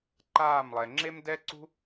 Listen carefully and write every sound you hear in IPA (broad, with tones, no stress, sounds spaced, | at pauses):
ǃ aː˦˨ m lˠ ɛ˨ ŋ͡ǁ e˦ m d ɛ˦ ǀ ṳ˦